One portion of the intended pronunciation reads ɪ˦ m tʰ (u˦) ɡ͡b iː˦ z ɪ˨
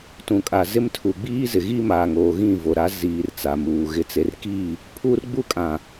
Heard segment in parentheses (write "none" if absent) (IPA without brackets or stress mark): u˨